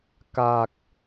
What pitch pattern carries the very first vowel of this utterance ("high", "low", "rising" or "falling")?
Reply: low